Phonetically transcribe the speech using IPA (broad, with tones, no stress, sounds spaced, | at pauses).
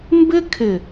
m b ɪ˦ kʰ ɪ˨